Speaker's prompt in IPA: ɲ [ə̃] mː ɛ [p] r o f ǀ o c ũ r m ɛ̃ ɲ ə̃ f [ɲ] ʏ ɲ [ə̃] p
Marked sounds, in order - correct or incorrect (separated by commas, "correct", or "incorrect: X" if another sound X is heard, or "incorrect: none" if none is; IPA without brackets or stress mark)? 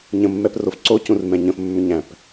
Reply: correct, correct, incorrect: mː, incorrect: æ̃